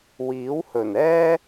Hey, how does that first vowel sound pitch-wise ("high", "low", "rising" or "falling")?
rising